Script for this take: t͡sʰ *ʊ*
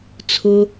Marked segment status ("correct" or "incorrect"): correct